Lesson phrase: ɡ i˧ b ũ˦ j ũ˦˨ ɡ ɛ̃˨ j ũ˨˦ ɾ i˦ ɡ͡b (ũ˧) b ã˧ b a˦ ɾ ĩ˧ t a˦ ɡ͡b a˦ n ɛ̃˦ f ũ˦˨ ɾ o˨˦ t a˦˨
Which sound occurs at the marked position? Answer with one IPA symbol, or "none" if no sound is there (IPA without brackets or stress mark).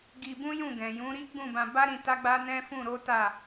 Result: ũ˦˨